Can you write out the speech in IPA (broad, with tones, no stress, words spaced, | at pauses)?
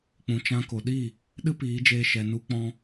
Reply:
k͡pũ˨t͡ʃã˧ko˨ɗi˦˨ | ɗɨ˦piː˨˦d͡ʒeː˧ ʃɛ˨nu˧k͡pɔ̃˧